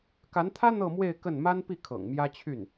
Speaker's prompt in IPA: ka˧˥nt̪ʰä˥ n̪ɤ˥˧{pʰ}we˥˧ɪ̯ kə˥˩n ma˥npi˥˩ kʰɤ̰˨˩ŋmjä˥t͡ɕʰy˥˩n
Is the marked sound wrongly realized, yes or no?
yes